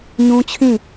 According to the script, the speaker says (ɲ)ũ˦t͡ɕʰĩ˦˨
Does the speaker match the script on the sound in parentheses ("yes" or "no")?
yes